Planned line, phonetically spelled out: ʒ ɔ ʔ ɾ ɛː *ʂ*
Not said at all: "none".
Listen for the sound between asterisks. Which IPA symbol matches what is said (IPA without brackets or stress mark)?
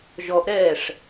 ʂ